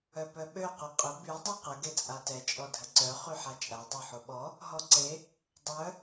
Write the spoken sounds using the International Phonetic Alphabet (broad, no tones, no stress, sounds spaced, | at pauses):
œ p œ ɓ ø q y qʼ ə b y dˤ y q ə ɡ e t͡sʼ a t ɛ t͡ʃʼ ɔ dʱ ə ǀ œ χ y ħ a t͡ʃʼ a dˤ o ħ o ɓ ɔ | ɦ ɔ ǀ e | dˤ œ